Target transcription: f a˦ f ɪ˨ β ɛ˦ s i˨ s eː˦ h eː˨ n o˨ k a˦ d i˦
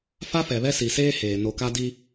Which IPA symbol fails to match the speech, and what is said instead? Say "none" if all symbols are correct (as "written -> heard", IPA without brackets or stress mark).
ɪ˨ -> ɛ˨